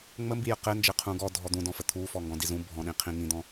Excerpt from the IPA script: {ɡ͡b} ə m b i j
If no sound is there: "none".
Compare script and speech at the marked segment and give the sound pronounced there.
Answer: ŋ͡m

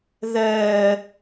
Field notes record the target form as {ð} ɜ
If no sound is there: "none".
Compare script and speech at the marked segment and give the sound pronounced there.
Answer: ð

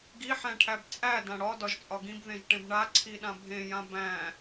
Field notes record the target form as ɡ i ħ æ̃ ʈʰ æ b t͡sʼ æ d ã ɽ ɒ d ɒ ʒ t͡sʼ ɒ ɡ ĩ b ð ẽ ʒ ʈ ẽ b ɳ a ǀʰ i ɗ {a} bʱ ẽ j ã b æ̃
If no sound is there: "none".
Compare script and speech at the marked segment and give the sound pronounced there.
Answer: ã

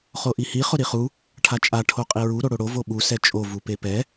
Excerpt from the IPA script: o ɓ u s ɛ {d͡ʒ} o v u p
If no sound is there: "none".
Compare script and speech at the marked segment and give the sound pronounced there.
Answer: t͡ʃʼ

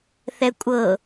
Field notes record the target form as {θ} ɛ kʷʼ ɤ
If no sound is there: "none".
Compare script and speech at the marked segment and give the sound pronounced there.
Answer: θ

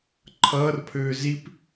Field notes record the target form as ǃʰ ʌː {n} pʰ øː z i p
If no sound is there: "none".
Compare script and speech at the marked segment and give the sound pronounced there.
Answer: r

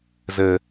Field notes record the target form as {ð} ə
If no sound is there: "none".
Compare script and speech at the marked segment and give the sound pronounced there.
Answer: z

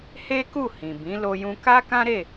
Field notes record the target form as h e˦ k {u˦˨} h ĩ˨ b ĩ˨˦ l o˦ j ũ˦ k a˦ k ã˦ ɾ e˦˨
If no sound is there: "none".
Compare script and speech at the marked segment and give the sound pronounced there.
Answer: u˦˨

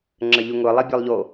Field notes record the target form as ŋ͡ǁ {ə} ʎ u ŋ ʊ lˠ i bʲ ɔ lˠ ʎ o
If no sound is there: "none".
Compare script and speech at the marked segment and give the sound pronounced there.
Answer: ə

